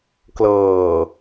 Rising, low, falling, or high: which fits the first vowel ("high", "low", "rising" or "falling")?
low